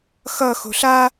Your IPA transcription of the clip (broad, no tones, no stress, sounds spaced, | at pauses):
x ʌ x o̤ ɬ a